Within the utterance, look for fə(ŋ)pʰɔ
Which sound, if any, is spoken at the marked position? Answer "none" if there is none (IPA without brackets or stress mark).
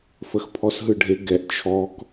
x